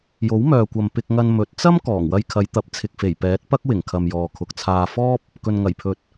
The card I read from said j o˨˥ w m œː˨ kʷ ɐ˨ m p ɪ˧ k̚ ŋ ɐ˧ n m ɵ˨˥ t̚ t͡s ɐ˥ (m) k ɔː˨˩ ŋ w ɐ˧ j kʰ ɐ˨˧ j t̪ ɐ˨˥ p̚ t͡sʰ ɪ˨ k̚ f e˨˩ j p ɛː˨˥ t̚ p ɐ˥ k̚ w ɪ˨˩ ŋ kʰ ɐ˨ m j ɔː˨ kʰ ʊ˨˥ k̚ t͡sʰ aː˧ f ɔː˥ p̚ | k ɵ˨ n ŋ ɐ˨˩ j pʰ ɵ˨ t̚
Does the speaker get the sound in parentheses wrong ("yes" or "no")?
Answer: no